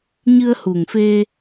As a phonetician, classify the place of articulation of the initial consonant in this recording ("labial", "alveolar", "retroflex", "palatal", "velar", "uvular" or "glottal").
palatal